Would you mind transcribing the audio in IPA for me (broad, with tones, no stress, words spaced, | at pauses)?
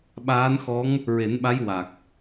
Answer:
ɓaː˧˥n xɔ˧˥ŋ | ɹe˨˩˦nɓa˧˥j wa˨˩k̚